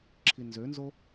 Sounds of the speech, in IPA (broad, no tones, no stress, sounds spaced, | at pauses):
ǁʰ i n z ø n z o